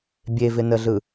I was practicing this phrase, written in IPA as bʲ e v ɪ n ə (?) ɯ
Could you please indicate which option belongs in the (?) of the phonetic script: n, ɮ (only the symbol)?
ɮ